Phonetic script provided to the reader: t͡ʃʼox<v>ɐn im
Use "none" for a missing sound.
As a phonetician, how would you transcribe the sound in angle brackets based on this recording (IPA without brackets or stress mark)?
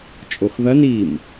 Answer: ð